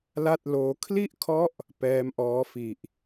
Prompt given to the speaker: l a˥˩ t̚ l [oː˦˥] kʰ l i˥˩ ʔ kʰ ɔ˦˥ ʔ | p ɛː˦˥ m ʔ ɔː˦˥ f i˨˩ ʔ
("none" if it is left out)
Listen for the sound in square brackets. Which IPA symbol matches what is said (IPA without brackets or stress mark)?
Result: oː˦˥